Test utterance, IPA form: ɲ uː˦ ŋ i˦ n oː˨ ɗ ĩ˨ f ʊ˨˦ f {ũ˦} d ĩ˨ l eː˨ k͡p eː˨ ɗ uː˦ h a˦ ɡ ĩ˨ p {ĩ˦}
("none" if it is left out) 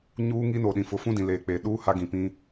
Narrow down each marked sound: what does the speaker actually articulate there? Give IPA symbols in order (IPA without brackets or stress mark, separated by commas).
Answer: ũ˦, ĩ˦